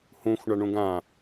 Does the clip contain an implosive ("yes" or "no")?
no